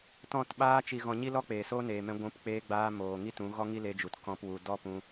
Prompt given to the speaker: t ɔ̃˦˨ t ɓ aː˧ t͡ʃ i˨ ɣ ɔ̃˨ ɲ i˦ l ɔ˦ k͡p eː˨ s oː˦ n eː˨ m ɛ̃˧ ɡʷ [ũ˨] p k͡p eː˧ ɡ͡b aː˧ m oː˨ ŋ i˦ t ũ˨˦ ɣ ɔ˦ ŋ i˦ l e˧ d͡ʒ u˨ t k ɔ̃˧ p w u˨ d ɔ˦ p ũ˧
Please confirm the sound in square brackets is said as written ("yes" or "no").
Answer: no